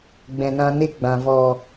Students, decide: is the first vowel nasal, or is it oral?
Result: nasal